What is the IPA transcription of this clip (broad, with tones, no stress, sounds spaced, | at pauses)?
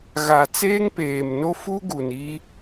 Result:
ɣ a˨ t͡s eː˦ ŋ p eː˨ m n o˦ f u˦ ɡ u˨ n i˦